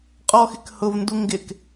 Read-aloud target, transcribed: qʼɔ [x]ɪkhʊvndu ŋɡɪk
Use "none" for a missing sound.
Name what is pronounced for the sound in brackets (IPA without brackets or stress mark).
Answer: x